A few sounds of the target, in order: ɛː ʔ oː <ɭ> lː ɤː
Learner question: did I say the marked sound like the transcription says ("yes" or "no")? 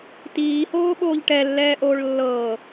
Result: yes